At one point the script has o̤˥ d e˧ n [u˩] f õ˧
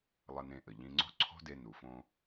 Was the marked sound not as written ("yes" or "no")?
no